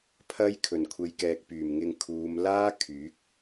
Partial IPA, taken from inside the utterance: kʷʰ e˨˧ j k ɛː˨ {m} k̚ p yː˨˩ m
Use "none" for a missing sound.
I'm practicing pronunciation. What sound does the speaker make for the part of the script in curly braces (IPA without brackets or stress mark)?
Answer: none